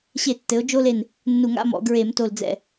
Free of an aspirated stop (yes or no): yes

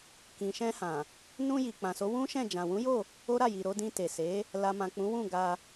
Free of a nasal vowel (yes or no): no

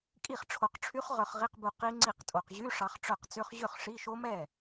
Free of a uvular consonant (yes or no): no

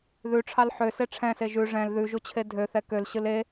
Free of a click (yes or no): yes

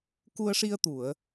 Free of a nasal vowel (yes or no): yes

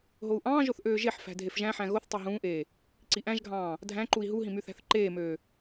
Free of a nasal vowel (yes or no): no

